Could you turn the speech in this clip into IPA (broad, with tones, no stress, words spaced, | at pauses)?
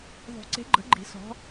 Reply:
ðˤo̤˨˩˦ǀe̤˨˦ɡ͡ǃə̤˨˩˦ɡ͡ǃi̤˨˩˦ sɔ̤˨˦